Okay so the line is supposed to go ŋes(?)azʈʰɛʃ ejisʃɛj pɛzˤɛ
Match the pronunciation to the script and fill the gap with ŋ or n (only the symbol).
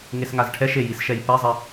ŋ